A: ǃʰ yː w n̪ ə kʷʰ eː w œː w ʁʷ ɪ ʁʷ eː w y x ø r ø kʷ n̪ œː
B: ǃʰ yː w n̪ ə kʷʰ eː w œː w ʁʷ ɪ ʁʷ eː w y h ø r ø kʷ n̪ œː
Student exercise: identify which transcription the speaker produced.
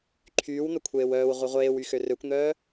A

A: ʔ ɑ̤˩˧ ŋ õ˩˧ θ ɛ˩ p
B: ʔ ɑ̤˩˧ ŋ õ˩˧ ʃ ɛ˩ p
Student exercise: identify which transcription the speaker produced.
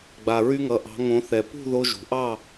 A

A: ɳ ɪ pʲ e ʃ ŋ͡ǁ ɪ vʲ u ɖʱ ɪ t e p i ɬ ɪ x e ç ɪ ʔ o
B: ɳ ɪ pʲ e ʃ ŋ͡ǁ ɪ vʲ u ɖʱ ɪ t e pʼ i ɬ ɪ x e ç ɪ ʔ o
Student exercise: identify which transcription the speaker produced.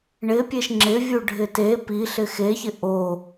A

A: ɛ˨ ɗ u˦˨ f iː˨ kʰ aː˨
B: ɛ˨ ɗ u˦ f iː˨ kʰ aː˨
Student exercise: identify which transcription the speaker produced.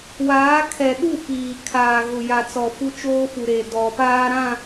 A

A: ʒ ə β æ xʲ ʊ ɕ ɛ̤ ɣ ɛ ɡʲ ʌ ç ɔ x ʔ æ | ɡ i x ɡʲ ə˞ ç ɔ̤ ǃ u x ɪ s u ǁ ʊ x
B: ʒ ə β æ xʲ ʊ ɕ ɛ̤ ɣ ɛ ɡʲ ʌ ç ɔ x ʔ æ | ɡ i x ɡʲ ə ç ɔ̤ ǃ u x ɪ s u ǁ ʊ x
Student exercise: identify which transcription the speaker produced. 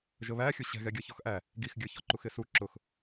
A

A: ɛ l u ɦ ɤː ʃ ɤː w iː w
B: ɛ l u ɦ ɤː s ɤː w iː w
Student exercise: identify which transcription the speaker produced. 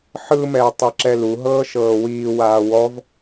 A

